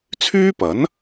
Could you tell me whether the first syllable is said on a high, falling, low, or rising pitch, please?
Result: high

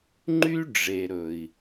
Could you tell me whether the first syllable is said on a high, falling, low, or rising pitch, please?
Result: high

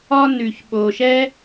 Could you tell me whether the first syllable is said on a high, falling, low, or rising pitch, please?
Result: high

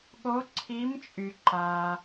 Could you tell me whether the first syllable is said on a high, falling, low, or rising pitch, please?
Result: rising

